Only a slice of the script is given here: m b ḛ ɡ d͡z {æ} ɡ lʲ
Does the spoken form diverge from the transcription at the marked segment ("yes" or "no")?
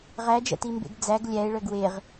no